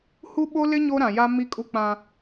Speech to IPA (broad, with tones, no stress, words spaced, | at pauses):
hu˦ɓo˦lɪ˦ ɲo˦ɾã˨ja˦ mi˦kʼu˦ k͡pã˦